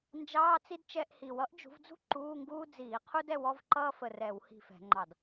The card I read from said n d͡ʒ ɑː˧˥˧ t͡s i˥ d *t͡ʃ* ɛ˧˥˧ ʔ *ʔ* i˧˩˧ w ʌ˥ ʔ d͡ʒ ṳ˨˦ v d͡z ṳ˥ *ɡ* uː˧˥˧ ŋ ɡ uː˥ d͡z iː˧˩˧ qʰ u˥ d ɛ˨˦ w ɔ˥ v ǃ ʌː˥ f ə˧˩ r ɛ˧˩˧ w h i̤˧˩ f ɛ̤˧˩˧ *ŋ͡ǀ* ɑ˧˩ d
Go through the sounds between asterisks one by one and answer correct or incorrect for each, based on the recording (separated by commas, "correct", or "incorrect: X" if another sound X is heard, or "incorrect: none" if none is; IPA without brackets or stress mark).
correct, incorrect: h, incorrect: ǃ, incorrect: ŋ͡ǃ